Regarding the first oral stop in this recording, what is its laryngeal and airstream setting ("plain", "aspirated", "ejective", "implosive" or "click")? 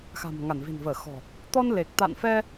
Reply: plain